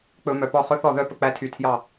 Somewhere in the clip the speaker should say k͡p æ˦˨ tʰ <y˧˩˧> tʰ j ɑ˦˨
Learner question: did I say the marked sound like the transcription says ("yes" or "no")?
yes